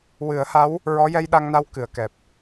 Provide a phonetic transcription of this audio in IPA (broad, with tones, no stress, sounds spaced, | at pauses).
w ɨ˨˩˦ ə̯ h a˧˥ w | ɹ ɔ˧˥ j ɛ˧ j ɗ a˧ ŋ n a˧˥ w k ɨ˨˩˨ ə̯ k ɛ˨˩ p̚